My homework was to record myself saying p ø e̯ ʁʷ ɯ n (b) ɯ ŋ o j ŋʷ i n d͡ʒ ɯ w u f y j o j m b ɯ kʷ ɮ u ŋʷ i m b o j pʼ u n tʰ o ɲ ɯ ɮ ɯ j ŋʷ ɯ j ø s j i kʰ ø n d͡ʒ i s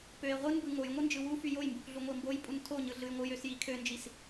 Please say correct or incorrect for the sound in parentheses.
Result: correct